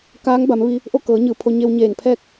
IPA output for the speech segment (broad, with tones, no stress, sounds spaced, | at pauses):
k aː˧˥ ŋ b a˩˧ m ʋ i˧ | ʔ o˥˨ k ɤː˩˧ ɲ ɯː˩ pʰ o˧ ɲ e˧ w ɲ eː˧˩ n pʰ ɛː˥˨ k̚